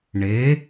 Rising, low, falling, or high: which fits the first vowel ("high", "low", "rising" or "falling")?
rising